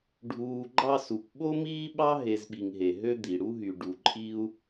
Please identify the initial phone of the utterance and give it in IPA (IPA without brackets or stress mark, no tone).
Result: ɖʱ